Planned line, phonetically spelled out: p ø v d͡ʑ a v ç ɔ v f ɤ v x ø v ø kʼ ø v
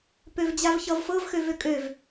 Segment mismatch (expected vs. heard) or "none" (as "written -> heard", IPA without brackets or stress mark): ɔ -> ʌ